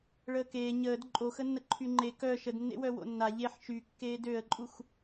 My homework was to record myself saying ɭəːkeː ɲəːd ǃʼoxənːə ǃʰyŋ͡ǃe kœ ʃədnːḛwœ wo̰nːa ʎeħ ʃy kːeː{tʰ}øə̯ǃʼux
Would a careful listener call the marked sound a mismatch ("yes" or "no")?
yes